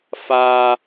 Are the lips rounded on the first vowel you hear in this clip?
no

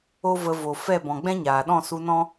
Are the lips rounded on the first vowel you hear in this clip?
yes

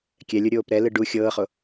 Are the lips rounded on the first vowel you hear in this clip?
no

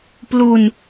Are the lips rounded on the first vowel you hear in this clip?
yes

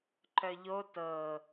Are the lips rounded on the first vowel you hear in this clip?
yes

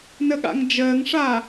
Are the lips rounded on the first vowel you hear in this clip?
no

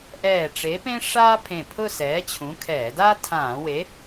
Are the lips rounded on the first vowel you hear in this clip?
no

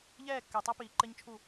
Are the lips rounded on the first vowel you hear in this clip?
no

